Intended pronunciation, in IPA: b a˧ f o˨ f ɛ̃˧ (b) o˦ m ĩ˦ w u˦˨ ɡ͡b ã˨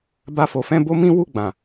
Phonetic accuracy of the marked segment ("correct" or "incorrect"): correct